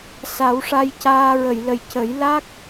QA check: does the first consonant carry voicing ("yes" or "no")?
no